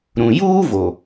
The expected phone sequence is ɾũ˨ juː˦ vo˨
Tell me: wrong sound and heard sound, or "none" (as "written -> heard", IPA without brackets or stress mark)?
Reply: none